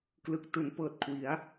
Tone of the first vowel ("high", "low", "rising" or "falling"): low